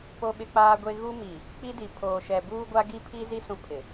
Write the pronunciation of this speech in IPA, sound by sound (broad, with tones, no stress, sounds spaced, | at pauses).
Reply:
p o˦ ɓ ɪ˦ k͡p aː˦ ɡʷ e˦ ɣ u˦ m i˨ | k͡p i˦ d i˨ pʰ oː˨ ʃ ɛ˨ b uː˦ ɡʷ a˦ ɡ i˦ pʰ i˦ z i˦ s ũ˦ pʰ ɪ˨